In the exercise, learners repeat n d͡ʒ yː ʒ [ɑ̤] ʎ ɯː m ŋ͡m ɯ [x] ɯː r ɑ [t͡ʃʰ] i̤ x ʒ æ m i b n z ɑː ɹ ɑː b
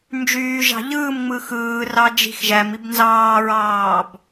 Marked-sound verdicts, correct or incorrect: correct, correct, incorrect: d͡ʒ

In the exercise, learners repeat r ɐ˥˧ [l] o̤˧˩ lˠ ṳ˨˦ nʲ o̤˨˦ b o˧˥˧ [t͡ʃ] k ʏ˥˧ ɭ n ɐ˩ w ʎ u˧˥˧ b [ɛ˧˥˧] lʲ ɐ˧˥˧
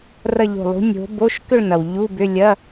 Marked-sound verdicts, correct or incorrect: incorrect: ʎ, incorrect: ʃ, incorrect: ʏ˧˥˧

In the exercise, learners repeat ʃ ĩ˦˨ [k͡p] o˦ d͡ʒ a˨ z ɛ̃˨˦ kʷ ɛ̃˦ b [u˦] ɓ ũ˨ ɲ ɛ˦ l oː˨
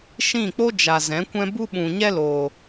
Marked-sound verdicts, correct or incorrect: correct, correct

